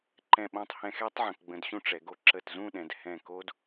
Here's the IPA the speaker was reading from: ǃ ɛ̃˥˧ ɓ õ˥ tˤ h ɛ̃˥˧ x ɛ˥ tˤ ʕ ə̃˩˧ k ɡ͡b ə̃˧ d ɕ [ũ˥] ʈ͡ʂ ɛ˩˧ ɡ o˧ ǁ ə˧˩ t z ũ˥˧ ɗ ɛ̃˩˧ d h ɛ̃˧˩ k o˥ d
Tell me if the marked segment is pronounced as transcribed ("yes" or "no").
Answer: yes